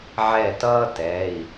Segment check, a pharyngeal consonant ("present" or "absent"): present